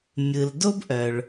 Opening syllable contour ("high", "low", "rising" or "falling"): low